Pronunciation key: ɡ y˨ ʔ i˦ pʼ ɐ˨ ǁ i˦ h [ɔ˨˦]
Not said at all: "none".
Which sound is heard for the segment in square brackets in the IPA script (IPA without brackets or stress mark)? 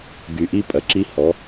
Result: ɔ˨˦